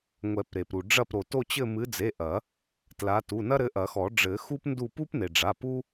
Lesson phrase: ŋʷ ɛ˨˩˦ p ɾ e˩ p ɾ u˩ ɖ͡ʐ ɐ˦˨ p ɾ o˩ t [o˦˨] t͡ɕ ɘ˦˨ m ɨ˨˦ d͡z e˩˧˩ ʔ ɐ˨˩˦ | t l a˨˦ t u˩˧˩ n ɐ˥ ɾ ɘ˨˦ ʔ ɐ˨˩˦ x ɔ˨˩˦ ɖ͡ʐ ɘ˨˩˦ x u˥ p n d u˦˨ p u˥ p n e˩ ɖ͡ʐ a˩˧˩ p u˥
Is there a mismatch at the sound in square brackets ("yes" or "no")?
no